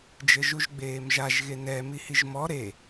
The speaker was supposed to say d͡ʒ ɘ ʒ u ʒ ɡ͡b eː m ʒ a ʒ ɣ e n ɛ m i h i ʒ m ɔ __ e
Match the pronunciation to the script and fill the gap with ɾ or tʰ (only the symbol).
ɾ